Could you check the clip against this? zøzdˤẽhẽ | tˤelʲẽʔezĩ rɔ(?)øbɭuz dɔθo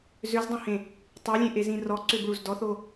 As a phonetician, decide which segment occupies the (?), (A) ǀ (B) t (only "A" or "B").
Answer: A